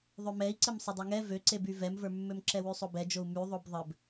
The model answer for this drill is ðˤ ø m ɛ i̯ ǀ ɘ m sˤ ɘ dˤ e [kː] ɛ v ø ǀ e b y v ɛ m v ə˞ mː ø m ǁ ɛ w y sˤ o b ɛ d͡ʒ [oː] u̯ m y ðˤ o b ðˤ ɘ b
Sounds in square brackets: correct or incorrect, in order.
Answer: incorrect: ŋ, incorrect: o

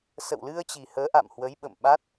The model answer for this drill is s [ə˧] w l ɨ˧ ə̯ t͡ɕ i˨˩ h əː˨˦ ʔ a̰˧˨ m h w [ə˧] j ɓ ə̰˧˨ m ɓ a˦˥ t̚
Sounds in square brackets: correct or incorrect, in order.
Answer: incorrect: ə̰˧˨, incorrect: ə˨˦

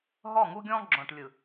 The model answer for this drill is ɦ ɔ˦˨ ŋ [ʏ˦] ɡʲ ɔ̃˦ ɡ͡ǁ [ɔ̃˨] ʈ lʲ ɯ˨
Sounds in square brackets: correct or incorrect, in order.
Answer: incorrect: u˦, correct

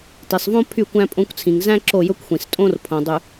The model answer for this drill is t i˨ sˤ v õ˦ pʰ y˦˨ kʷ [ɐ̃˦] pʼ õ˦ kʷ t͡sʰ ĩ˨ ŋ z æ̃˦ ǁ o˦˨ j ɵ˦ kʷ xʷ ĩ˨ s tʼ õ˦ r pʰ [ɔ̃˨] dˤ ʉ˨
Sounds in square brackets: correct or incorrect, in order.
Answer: incorrect: æ̃˦, incorrect: õ˨

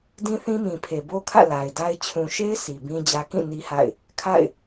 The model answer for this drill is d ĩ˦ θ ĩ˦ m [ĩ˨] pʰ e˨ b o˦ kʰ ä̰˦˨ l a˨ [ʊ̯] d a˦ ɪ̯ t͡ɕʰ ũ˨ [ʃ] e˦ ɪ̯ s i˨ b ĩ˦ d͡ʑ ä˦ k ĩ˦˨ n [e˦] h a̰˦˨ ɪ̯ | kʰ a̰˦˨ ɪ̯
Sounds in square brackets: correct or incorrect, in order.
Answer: correct, incorrect: ɪ̯, correct, incorrect: i˦

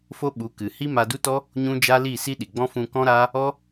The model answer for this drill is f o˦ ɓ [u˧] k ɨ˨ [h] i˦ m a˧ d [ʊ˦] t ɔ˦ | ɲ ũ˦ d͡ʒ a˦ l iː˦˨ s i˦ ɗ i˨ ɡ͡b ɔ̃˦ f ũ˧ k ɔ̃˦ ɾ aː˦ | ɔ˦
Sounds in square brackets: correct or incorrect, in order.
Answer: incorrect: u˨˦, correct, incorrect: u˦

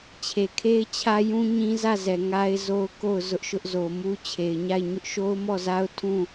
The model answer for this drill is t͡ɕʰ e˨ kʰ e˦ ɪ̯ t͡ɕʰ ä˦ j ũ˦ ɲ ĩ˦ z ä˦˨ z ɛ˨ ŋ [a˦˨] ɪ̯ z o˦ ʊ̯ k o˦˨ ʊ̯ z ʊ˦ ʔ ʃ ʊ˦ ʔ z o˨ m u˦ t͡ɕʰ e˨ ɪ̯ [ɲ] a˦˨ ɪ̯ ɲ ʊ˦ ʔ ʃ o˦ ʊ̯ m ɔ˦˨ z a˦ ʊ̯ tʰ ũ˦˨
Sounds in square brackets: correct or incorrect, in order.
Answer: incorrect: a˦, correct

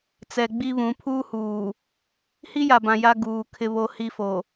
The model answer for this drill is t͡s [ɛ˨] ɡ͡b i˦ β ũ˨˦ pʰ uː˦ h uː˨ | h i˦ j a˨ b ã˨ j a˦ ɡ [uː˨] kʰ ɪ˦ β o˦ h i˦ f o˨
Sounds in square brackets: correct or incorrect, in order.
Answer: correct, correct

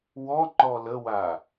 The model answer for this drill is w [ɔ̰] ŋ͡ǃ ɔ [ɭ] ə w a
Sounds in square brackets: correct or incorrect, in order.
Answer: incorrect: ɔ, incorrect: l

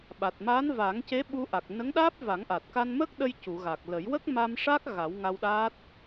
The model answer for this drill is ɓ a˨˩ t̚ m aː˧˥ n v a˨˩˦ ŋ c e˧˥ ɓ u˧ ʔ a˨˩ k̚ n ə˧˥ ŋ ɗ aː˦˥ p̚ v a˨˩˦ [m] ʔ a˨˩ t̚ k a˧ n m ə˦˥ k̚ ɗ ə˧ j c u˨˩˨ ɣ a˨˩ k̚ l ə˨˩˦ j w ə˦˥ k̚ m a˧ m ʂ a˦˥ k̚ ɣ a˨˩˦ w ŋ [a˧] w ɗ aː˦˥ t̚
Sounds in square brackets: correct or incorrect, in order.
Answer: incorrect: ŋ, correct

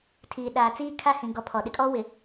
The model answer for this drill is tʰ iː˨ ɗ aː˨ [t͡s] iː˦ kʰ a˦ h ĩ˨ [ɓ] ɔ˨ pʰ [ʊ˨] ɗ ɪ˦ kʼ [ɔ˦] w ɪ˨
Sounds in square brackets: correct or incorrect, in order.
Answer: correct, incorrect: ɡ, incorrect: ɔ˨, correct

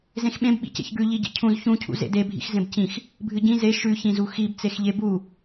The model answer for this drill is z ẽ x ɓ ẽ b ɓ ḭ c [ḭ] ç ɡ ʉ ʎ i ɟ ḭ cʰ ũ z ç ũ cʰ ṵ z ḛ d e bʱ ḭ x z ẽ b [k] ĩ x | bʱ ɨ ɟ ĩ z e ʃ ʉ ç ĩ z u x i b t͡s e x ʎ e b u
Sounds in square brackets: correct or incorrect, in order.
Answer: incorrect: ḛ, incorrect: c

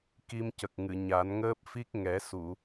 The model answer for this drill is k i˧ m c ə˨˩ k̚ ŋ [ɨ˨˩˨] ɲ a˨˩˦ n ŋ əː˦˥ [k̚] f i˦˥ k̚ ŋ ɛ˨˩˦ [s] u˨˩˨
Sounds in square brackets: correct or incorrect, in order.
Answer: correct, incorrect: p̚, correct

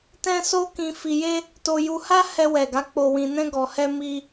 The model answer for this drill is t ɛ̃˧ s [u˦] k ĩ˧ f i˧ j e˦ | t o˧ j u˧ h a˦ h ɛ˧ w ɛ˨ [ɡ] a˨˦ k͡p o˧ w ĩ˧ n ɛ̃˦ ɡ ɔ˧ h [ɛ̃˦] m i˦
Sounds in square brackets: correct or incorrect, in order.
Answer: incorrect: o˦, correct, incorrect: ɛ˦

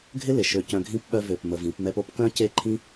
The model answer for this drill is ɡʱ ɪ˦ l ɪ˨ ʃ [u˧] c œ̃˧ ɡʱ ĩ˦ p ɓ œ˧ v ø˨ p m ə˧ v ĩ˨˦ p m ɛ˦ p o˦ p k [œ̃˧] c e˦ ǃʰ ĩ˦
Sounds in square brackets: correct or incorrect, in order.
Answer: incorrect: ø˧, incorrect: œ̃˦

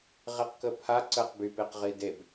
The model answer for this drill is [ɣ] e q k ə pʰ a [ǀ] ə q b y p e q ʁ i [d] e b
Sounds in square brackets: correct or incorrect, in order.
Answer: incorrect: ʁ, correct, correct

